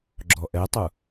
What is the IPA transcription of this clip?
ɡ͡ǁ ɔ ʔ ɛ tˤ u

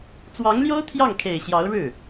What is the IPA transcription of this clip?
t͡s w ɑ˧˥ ŋ l j o˥ ʊ̯ t̪ʰ j ɑ˥˩ ŋ kʰ e˨˩ ɪ̯ ɕ j ɑ˧˥ ʊ̯ ɻ ɻ̩˥˩

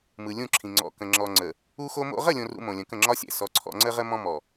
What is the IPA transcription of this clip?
m ɯ˨ lʲ ũ˦˨ ǁʰ ĩ˨ ŋ͡ǀ ɔ̰˨ k ə̃˨ ŋ͡ǁ ɔ˨ ŋ͡ǀ ə˨ | u˦ x o˦ m o̰˦ ʁ ə˦˨ lʲ õ˨ r ṵ˨ m õ˨ lʲ ə̃˨ k ə̃˦˨ ŋ͡ǁ ɒ˦ sʲ ɛ̰˨ s ɔ˨ ǀʰ ɔ̰˨ ŋ͡ǀ ə˦ ʁ ə˦ m ɔ̃˦ m ɔ˨

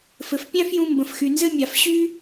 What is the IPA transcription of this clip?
f ɘ˩ f pʲ æ̃˥ f j ũ˧ m b ə̃˩ f x y˩ n z ɘ˥ mʲ a˩ f ɕ y˥

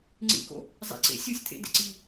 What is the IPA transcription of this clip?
ŋ͡ǀ ḭ k o̰ | zˤ ḛ ǀ ḛ sʲ u sʲ t̪ʰ ḛ d ḛ ǀ i

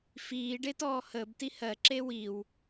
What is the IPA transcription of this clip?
f iː ɖ e t ɔː h əː b t i h ɜ ǁ e w i w

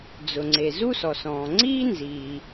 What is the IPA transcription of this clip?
d͡z ʊ˩ ŋ͡ǀ e˩ z u˥ s ɔ˩ s ɔ̃ː˩ ŋ͡ǀ iː˥ n z iː˩

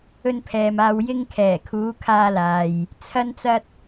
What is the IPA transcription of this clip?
ɵ˧ n pʰ ɛː˨ m aː˨ w j ɪ˧ ŋ kʰ ɛː˨˩ kʰ uː˨˧ kʰ aː˧ l aː˨ j | t͡sʰ ɐ˧ n t͡s ɐ˧ t̚

